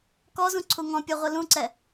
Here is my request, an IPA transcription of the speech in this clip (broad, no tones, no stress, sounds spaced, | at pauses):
k ɔ z ũ ǀʰ u ŋ ɔ̃ pʲ o ʁʷ ɯ l ũ ǀ ɛ